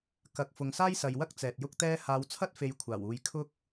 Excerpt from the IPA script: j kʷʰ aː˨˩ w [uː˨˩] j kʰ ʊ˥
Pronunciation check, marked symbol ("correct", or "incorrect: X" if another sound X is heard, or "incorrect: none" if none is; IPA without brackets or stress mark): incorrect: uː˨